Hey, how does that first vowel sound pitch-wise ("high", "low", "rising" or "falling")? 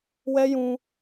high